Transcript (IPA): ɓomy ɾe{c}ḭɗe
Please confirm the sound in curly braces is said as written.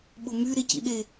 yes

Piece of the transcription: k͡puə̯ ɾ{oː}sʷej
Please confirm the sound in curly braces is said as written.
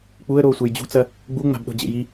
yes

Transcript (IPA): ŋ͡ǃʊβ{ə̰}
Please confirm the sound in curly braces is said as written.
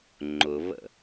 yes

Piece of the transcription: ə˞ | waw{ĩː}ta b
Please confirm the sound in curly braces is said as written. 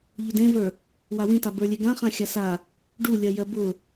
no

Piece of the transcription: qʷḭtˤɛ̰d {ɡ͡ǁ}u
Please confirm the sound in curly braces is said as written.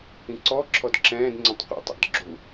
yes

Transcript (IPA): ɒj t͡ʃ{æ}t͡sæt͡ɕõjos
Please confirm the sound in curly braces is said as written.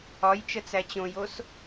no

